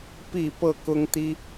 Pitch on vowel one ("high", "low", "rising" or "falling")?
falling